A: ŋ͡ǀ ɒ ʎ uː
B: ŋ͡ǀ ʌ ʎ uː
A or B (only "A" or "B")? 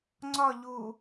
A